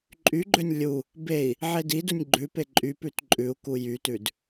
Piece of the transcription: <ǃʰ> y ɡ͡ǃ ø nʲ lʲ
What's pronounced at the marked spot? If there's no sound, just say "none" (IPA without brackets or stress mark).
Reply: ǃʼ